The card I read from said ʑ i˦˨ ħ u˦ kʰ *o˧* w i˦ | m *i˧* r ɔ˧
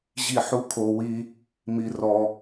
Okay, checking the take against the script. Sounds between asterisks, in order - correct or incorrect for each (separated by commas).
correct, correct